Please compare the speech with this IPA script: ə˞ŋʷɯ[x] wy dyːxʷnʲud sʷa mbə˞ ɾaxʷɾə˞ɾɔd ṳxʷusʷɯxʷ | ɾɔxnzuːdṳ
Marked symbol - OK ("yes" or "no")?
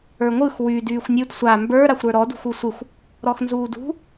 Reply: yes